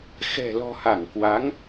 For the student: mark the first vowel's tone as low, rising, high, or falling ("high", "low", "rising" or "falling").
low